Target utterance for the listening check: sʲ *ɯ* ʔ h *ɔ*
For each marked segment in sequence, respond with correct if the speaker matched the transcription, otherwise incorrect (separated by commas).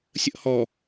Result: incorrect, correct